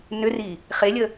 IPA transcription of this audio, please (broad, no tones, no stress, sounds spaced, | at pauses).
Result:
n ʏ r i | χ e lʲ ə